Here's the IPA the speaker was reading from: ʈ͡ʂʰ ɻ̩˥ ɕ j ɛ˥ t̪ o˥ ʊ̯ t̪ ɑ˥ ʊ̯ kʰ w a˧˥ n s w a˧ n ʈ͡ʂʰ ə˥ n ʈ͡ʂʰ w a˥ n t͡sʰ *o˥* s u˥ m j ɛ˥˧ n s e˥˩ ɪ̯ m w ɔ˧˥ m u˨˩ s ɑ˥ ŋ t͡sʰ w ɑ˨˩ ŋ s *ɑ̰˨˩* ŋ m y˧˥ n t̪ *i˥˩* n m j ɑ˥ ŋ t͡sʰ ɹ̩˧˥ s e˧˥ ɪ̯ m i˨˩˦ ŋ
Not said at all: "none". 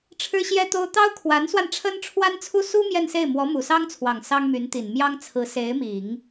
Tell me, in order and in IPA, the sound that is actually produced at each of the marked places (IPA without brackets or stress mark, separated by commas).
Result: u˥, ɑ˥, i˨˩